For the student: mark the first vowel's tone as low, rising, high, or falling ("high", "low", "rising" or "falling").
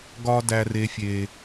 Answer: high